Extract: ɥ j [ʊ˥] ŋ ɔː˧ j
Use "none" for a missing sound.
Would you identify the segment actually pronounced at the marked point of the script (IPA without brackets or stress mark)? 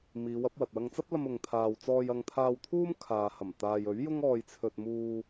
ʊ˥